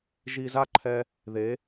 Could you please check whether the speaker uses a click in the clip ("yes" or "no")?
yes